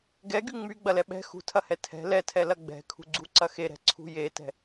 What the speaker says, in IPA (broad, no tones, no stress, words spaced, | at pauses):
ɡɛɡy ŋ͡myɡ͡bɐlɛ ɓɛ̤ xṳtʰɐhɛ tʰɛ̤ lɛtʰɛlɐ ɡ͡bɛ̤kʰṳɡ͡ǀuǀɐ xeɾɛ̤ǀʰṳ jetɛ̤